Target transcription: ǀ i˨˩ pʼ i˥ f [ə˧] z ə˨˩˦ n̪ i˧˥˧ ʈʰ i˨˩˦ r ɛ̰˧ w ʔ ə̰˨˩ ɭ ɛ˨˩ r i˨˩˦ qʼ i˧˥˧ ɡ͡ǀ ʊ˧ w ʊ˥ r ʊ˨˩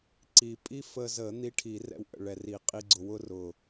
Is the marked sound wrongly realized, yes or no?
no